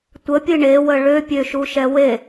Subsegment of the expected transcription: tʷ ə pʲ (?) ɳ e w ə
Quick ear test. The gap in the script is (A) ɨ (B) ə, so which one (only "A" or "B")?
A